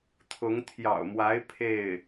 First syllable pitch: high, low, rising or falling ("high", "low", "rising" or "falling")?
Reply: rising